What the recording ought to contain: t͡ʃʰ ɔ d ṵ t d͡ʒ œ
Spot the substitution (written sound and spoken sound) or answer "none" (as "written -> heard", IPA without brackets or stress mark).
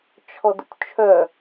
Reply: d͡ʒ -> t͡ʃʰ